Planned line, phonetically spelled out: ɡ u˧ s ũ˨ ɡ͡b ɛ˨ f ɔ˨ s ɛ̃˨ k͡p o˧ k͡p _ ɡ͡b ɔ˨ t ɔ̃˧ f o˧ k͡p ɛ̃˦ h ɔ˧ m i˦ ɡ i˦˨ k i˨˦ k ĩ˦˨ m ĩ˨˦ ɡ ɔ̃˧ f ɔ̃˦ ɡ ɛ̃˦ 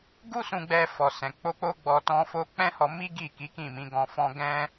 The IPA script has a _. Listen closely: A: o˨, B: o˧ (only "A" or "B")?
B